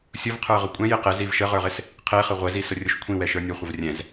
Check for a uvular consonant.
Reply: present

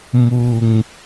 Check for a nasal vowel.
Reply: absent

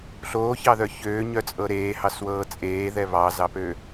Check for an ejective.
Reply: present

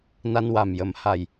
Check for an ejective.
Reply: absent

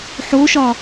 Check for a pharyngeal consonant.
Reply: present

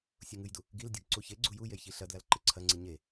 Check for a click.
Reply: present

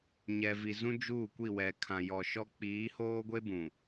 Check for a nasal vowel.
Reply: present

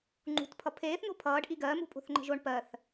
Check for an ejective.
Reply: present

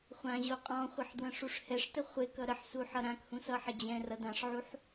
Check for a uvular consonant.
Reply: present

